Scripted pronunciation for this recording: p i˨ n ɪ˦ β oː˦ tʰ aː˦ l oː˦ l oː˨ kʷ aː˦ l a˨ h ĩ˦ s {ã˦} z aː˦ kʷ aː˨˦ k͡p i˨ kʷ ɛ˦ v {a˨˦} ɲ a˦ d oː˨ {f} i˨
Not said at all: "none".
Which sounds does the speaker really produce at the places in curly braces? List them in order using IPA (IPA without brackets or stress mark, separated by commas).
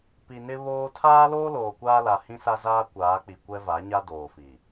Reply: a˦, a˨˦, f